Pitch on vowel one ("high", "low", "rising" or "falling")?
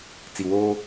low